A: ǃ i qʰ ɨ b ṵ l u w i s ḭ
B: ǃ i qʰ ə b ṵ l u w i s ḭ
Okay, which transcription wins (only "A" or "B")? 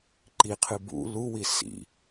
A